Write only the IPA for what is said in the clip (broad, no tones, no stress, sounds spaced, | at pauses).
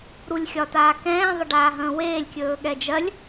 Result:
ɾ u lʲ xʲ ɒ t aː k ɛ̃ː ðˤ ə ɖ aː ɦ ə̃ː w eː lʲ kʲ ɵː ɠ ɛ d͡ʒ ɜ lʲ